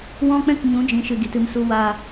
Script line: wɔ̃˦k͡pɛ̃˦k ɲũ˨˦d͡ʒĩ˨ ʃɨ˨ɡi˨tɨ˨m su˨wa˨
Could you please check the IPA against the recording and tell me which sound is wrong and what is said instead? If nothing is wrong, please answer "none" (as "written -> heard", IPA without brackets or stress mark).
none